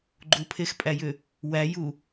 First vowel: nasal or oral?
oral